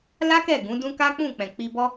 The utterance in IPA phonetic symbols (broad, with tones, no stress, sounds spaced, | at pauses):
l a˦ k ɛ˦˨ ɡ ũ˨˦ d ũ˦ k a˦ k͡p ũ˦˨ k͡p ɛ̃˨ k͡p i˧ b ɔ˦